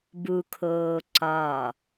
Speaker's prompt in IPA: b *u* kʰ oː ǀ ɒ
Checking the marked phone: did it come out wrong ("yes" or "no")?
no